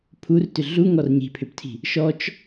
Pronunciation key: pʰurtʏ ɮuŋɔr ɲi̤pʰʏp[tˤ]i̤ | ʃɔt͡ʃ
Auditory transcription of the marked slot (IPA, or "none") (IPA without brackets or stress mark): tʰ